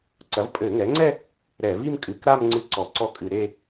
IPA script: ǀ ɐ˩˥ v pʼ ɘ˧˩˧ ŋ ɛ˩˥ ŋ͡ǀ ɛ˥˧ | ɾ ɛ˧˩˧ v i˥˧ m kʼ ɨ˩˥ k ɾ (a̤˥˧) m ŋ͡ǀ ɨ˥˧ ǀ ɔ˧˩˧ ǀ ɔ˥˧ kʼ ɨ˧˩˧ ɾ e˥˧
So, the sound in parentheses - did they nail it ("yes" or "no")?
no